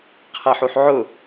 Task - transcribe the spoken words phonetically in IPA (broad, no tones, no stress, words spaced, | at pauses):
qʰæħuħʕʊ